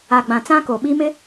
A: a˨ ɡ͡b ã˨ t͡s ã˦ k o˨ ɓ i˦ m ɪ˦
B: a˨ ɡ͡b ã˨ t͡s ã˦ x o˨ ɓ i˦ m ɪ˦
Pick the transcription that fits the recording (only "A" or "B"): A